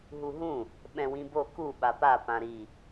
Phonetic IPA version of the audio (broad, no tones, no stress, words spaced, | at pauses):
ɦuɦũ | ɓɛ̃wĩbo ku ɓapa pãɾi